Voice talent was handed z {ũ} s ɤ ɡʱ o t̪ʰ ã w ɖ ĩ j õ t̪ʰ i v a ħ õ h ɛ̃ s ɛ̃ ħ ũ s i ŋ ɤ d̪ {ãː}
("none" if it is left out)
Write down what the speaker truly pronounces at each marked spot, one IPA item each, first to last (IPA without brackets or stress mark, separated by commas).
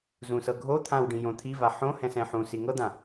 ũ, ã